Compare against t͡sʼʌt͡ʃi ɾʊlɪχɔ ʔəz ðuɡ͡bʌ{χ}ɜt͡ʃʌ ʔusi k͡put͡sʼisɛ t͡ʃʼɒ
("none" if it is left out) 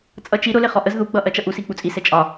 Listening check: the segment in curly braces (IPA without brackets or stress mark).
ʔ